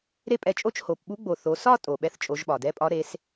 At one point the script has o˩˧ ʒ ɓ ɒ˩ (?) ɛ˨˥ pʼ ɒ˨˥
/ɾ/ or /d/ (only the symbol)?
d